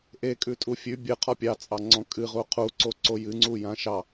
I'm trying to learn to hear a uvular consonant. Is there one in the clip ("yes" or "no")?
yes